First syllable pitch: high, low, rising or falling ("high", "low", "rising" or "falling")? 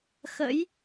rising